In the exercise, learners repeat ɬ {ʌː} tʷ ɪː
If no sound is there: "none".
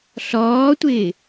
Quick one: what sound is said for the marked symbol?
ɔː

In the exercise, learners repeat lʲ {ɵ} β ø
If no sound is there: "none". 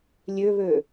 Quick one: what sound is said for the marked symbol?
ø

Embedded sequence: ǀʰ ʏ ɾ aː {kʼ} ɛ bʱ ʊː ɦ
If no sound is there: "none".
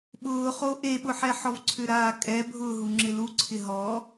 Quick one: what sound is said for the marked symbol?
kʼ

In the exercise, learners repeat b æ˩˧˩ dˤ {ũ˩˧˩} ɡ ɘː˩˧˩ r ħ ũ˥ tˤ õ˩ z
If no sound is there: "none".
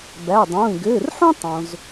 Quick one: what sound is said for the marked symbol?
ũː˩˧˩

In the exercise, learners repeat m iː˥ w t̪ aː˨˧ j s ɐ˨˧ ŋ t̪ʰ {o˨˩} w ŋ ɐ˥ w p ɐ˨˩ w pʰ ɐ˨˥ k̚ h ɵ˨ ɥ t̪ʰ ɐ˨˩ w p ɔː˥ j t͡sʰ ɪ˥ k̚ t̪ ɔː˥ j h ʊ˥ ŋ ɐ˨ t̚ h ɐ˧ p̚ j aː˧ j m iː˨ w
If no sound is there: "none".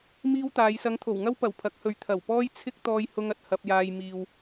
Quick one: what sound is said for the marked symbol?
o˨˩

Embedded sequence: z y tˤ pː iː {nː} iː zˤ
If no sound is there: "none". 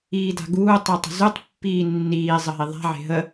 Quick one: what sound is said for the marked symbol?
nː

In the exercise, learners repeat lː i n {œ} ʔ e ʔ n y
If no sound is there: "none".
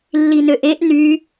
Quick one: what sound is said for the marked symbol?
ø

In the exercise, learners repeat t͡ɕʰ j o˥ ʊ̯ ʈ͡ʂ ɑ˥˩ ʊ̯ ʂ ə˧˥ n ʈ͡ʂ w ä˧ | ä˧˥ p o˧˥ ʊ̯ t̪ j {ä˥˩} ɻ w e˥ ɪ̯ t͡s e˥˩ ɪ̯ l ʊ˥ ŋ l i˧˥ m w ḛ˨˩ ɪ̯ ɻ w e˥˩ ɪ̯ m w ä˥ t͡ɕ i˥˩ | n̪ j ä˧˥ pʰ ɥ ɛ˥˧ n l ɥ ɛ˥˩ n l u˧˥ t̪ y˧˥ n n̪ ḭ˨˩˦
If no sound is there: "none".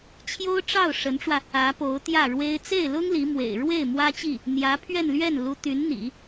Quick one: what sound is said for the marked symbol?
ä˥˩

